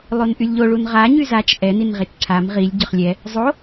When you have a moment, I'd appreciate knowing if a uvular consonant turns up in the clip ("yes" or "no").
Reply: yes